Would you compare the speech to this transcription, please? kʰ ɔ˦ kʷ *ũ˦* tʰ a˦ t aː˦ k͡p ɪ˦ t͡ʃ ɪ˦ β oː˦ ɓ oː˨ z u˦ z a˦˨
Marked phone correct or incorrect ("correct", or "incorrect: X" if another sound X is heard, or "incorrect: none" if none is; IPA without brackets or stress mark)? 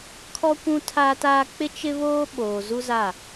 correct